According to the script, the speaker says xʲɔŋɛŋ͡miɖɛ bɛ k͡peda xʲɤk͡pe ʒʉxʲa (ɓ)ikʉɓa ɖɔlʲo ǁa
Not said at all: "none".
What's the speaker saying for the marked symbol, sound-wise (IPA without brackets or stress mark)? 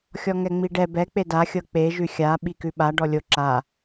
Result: ɓ